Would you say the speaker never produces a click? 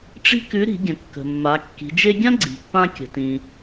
no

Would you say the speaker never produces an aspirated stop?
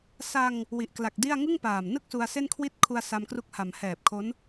no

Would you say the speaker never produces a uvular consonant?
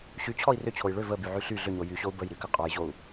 no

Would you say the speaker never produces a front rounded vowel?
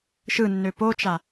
no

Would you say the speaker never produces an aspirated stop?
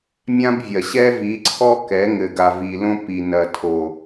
no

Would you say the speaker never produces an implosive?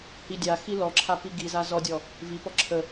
yes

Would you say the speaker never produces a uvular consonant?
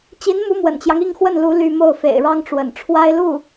yes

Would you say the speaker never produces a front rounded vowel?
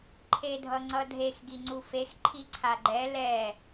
yes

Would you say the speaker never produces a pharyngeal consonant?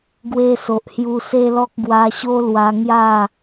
yes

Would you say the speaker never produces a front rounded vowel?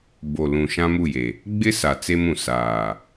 yes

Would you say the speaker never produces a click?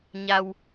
yes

